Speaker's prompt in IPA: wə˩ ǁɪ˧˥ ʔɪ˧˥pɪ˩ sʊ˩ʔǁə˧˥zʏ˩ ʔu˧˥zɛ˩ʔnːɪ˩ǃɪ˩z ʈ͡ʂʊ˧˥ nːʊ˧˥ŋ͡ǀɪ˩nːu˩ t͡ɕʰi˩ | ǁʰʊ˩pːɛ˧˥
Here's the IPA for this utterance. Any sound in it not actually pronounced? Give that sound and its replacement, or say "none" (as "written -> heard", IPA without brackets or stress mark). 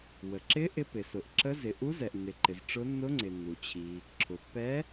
ʏ˩ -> ɪ˩